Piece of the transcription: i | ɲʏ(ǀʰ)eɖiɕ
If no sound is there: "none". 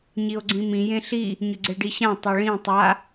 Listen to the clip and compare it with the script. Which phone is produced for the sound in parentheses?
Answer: ɡ͡ǀ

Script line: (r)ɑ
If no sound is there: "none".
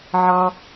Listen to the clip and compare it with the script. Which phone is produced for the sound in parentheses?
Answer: ʕ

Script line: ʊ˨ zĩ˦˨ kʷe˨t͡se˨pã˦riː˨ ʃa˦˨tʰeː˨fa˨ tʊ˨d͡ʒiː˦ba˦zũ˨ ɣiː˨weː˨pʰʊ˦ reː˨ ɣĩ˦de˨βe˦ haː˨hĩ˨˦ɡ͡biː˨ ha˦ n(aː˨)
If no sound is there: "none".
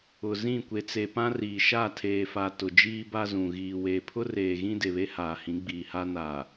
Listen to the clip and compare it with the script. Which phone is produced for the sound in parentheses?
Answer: aː˨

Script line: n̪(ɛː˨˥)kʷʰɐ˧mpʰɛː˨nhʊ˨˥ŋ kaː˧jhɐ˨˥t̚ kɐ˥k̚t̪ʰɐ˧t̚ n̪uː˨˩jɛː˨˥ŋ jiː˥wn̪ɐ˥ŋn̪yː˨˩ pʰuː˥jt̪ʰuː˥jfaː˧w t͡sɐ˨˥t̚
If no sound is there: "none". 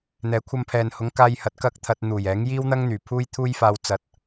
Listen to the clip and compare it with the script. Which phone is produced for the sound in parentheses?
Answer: ɛː˨˥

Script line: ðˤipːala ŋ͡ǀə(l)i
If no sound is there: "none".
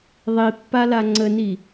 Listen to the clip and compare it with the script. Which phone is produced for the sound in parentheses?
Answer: n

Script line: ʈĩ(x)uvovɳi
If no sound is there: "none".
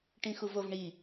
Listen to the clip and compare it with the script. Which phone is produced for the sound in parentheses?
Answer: x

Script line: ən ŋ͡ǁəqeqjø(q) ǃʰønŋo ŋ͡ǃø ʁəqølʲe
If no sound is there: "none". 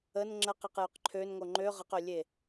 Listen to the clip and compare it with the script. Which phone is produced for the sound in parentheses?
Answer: q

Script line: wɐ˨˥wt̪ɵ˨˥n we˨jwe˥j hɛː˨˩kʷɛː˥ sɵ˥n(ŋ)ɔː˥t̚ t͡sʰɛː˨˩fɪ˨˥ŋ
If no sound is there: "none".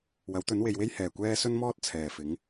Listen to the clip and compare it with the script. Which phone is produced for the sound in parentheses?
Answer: m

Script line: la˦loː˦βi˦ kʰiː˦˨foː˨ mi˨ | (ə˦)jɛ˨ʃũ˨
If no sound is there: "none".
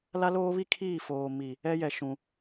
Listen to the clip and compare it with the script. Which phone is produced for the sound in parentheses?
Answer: ɛ˦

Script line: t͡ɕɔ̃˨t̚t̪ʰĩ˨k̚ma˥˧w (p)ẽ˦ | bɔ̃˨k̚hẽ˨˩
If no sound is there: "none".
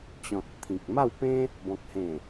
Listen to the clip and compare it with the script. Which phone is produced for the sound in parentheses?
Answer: p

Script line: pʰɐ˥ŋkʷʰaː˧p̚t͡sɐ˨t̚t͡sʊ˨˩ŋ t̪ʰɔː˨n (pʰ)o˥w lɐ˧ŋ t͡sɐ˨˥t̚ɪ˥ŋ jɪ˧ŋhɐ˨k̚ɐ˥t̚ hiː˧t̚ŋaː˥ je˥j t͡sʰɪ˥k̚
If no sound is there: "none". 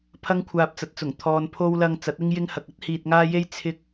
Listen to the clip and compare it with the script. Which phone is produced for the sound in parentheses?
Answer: pʰ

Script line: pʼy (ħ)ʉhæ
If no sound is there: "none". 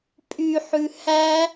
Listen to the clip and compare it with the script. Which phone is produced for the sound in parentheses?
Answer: ħ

